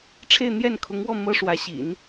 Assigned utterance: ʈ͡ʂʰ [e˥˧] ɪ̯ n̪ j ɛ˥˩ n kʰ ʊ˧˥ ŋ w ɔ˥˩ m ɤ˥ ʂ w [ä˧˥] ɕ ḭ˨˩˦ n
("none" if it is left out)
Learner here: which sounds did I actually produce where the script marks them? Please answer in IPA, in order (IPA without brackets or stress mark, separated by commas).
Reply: e˥˧, ä˧˥